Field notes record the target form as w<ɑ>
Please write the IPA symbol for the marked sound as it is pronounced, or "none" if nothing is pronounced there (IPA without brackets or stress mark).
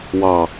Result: ɑ